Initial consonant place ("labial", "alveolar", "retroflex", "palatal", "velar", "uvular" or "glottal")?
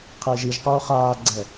uvular